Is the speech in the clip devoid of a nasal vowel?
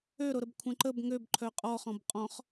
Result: no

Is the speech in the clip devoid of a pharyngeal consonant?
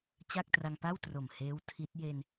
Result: yes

